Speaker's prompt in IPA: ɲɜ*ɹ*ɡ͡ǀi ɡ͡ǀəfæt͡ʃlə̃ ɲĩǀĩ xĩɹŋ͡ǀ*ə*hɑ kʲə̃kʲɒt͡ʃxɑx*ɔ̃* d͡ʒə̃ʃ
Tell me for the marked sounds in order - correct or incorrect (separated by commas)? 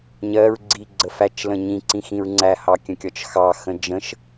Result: correct, incorrect, incorrect